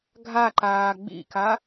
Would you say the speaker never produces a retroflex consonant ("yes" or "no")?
yes